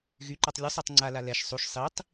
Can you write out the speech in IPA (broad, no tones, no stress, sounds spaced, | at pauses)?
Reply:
ɣ y ǃ a tˤ lʲ u sˤ ɛ tˤ ŋ͡ǀ a l a l ɛ ʃ sˤ u ʃ sˤ i tˤ